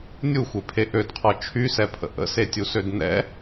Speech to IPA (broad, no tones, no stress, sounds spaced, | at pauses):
nʲ u xʷ e pʰ e ʔ ø d qʰ ɔ t͡ʃʰ y s ɛ pʰ ə̰ ʔ ə̰ s e tʲ u s ø d n ɛ̰